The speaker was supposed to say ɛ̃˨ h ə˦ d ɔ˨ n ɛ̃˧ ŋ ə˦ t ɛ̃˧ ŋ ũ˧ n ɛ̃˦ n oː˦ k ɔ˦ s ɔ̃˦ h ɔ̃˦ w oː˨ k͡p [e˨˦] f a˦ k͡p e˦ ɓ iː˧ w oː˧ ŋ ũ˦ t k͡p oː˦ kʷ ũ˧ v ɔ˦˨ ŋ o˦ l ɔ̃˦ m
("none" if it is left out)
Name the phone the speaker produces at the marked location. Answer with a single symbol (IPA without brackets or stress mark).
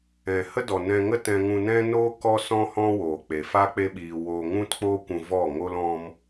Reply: e˨